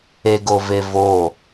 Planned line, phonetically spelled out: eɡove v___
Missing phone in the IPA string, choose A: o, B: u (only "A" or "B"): A